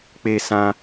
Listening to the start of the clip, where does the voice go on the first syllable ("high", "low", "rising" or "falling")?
high